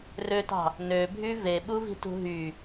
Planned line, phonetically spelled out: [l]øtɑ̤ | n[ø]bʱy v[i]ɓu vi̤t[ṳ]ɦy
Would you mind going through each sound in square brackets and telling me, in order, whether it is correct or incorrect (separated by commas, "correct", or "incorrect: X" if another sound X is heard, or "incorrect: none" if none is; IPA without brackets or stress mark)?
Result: incorrect: r, correct, incorrect: e, correct